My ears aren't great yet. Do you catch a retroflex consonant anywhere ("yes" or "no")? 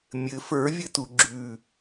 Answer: no